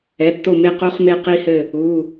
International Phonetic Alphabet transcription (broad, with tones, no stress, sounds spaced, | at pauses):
ɛ˩˧˩ tː o˦˨ m e˦˨ q o˦˥ χ m e˦˨ q i˦˥ h ɘ˦˨ | u˩˧˩